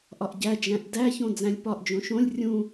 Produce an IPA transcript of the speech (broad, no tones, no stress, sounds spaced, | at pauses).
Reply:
ʔ ɒ ʔ ɟ æ d͡ʒ æ̃ ʔ d æ ç õ d͡z æ̃ lʲ p ɒ ʔ d͡ʒ õ ʃ õ lʲ rʲ ũ